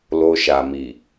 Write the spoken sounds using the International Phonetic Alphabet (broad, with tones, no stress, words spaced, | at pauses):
lo˧ʃa˨ mi˨